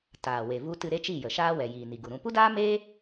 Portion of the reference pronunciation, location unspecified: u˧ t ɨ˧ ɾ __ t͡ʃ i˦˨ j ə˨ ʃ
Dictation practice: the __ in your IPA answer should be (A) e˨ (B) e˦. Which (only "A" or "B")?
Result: B